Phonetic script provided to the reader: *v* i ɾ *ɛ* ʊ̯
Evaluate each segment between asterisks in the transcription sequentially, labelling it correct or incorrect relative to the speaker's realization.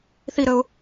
incorrect: θ, incorrect: ə

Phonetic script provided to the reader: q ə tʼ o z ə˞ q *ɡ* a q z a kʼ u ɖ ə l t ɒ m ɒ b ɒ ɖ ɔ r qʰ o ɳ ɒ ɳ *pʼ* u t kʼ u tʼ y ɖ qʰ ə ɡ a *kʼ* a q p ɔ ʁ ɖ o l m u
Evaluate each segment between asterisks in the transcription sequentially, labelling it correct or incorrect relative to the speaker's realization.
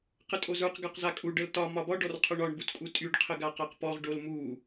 correct, incorrect: b, incorrect: q

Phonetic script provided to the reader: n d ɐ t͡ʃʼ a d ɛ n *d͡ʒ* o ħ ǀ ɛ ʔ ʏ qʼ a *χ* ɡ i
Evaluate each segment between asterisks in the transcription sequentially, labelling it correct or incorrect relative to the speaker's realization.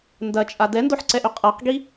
incorrect: d, incorrect: q

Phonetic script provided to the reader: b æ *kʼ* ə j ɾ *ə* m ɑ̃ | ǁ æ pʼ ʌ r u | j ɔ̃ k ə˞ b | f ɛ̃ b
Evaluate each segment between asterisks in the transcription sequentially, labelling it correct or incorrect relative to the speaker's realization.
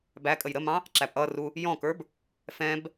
correct, correct

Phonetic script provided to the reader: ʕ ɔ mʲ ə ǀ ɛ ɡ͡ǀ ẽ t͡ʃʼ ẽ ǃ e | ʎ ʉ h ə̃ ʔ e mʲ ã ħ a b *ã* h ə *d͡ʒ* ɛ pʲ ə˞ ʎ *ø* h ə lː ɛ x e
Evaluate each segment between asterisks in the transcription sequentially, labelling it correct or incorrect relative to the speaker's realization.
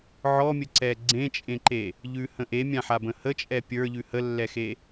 incorrect: ə̃, incorrect: t͡ʃʼ, incorrect: ʉ

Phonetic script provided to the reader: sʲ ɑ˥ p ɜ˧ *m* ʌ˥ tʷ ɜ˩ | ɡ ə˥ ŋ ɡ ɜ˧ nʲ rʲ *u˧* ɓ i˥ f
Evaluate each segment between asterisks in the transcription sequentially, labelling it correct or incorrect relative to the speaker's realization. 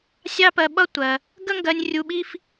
incorrect: ɓ, correct

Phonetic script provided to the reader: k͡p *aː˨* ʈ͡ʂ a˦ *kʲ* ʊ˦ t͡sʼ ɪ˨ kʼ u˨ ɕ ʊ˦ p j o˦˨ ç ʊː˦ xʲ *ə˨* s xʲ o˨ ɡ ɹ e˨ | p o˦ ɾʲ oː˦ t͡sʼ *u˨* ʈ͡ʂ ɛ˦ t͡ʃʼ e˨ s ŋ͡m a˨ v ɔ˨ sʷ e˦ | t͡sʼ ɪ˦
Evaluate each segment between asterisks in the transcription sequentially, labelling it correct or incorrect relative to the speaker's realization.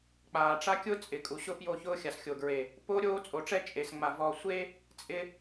correct, correct, incorrect: a˨, incorrect: o˨

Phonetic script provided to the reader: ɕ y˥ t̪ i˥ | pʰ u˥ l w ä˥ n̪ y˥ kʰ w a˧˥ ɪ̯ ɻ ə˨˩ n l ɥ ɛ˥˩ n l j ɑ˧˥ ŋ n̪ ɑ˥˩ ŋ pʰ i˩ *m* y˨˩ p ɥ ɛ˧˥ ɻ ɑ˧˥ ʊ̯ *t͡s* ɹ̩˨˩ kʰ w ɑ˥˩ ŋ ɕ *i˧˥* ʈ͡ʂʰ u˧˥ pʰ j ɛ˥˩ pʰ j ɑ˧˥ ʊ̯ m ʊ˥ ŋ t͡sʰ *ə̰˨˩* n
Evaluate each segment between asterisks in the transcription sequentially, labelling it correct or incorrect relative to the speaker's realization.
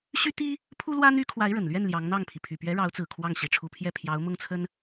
incorrect: pʰ, correct, incorrect: i˨˩, incorrect: ə˥

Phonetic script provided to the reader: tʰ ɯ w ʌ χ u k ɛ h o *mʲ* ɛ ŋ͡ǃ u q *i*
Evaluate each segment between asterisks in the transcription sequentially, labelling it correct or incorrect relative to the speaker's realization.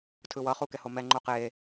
incorrect: m, incorrect: e

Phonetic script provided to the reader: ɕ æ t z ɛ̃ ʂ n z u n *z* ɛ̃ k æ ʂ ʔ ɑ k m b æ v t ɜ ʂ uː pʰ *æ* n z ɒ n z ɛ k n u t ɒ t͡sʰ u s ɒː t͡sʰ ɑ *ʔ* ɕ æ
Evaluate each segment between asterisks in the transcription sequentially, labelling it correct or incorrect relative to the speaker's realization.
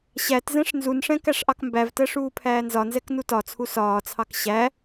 incorrect: ʂ, incorrect: æː, incorrect: k

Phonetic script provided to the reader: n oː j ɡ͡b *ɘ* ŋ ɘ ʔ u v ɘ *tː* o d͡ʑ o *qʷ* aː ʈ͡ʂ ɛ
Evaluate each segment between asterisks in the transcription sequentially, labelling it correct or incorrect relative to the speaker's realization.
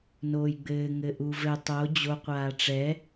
incorrect: ɘː, incorrect: tˤ, correct

